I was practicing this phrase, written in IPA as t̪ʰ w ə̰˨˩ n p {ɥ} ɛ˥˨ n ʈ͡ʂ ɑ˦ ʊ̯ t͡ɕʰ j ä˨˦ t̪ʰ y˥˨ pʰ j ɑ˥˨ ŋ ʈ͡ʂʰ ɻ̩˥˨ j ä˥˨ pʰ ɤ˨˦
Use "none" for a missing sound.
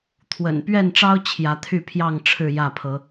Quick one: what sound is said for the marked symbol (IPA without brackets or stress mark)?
ɥ